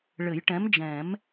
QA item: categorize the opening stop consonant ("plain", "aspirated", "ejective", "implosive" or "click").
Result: plain